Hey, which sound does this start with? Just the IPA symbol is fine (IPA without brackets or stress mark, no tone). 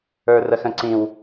ə˞